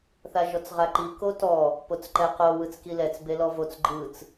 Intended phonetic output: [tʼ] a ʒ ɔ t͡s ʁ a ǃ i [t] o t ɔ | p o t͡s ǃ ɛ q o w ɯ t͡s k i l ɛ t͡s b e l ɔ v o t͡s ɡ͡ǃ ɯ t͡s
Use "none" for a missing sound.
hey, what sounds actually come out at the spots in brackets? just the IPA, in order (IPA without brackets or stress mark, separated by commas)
θ, k